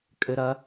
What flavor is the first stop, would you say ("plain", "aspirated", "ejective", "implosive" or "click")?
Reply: ejective